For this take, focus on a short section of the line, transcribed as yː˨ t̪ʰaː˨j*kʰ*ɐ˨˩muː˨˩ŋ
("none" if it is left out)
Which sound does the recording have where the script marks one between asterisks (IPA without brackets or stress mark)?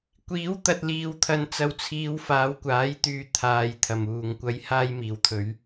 t̪ʰ